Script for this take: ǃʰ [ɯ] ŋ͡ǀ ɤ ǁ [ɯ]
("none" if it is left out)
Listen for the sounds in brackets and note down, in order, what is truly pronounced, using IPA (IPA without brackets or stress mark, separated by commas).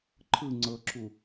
ɯ, u